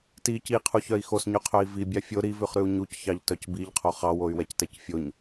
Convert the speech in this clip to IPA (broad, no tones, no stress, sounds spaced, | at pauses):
t i c i qʰ u ç œ i̯ x o s ɲ ʉ qʰ œ i̯ v i bʲ ɑ fʲ o ɾ i v ʉ χ ɾ ʉ u̯ ɲ u c ç ɑ ʎ t œ c b i ʎ qʰ o χ ɑ w o y̯ w ɛ c t ɛ c fʲ o ɲ